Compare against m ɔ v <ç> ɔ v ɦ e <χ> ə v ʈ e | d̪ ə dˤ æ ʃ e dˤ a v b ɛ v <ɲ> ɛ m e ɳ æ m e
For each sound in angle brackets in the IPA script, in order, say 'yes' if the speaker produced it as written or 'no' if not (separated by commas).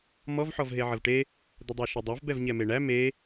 no, no, yes